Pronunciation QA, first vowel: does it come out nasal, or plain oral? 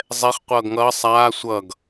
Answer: oral